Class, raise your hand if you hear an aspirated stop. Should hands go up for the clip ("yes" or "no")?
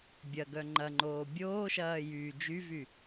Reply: no